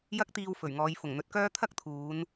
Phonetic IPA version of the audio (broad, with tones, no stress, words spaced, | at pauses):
jɐ˥k̚t̪iː˧wfɵ˨˩ɥŋɔː˨˧j fʊ˨˩ŋn̪ɵ˨˥t̚kœː˥ t̪ʰɐ˥k̚t̪ʰuː˨˧n